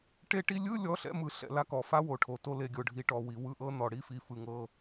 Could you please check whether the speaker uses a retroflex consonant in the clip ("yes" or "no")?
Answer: yes